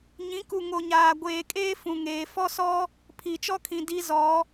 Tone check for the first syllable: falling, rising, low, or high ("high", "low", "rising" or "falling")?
rising